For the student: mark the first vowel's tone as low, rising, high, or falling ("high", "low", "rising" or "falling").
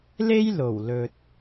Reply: high